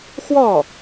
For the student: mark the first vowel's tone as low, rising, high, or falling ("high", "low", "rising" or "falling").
falling